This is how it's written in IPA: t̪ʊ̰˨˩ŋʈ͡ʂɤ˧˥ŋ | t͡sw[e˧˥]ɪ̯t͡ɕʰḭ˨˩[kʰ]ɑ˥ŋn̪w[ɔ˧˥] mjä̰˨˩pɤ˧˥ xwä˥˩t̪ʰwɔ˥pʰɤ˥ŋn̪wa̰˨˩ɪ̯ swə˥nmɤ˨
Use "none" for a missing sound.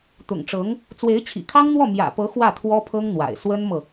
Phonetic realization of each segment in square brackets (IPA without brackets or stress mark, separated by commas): e˧˥, kʰ, ɔ˥˩